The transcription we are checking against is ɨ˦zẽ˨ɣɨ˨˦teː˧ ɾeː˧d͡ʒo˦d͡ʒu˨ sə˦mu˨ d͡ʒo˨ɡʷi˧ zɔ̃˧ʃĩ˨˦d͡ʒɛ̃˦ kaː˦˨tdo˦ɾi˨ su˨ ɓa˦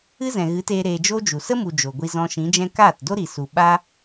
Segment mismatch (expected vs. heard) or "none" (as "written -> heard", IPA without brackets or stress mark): ẽ˨ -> ɛ̃˨